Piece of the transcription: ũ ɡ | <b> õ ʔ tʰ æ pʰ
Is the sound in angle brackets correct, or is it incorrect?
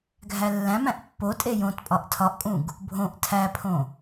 incorrect